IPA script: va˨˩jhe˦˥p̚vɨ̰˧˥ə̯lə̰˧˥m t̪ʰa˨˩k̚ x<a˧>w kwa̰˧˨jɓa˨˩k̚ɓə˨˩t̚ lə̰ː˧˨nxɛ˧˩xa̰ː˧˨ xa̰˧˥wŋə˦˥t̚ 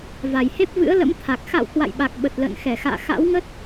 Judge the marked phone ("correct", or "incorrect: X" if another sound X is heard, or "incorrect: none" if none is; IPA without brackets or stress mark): incorrect: a̰˧˨